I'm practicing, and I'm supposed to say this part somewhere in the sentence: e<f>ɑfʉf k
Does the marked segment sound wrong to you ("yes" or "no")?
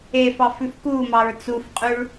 no